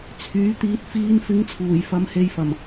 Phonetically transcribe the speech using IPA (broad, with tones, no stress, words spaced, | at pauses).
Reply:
t͡sʰyː˨˥t̪iː˧t̚ fiː˧nfɪ˨˥ŋ t͡sʰuː˨˩jfɐ˨˧mhe˨˧jfɐ˨˩m